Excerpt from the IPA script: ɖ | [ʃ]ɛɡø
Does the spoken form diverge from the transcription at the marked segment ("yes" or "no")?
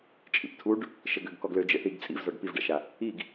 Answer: no